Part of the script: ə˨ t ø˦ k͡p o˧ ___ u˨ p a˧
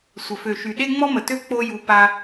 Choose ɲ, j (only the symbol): j